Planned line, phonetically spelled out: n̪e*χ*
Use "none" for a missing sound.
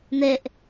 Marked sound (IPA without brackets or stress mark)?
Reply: ʔ